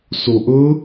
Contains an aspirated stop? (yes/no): no